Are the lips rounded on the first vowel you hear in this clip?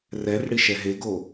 no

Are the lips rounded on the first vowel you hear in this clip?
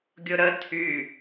yes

